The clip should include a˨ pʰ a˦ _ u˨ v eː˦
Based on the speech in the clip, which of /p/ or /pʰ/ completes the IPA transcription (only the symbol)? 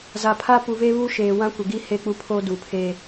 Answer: p